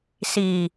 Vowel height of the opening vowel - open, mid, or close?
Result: close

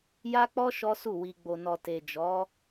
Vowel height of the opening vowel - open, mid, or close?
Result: open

